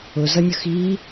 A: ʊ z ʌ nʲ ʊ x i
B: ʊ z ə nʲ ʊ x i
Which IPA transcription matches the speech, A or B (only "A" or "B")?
A